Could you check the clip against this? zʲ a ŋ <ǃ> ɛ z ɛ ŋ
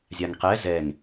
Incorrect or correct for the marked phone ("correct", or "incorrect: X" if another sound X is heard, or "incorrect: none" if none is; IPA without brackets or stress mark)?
incorrect: q